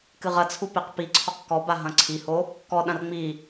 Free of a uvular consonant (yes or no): no